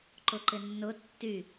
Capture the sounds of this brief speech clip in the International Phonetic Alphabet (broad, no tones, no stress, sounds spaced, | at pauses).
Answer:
ǃ ʊ ǃ ɪ nː ʊ tː y